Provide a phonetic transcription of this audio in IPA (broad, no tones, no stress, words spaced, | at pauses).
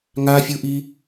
ŋafʲuʔi